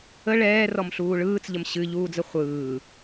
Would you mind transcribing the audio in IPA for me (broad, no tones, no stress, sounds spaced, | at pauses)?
ə ɭ ɛː r ɔ m ɬ uː ɭ ɯː t͡s ʎ ə m ɕ ɨ ʎ uː d͡z ə χʷ ɯː